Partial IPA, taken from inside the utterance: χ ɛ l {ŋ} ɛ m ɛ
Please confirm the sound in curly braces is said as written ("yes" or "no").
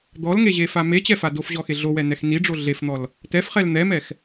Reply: no